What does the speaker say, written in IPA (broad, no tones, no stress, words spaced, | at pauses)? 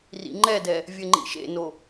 rḭŋ͡ǃɛdɛ | vʲɘŋ͡ǃḭʃḛno